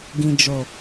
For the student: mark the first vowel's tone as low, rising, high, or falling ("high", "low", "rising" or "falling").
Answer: low